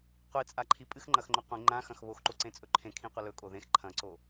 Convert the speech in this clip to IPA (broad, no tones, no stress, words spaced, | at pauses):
qʷit͡sʼaǃʰi pʼɨxŋ͡ǃɐxŋ͡ǃo qʷĩ ŋ͡ǃãxɐ̃x βoxǃoǀẽt͡sʼɵ ǃʰẽkʰĩqʷɐ lɵkʼo ðẽx ǃʰɐ̃ǀo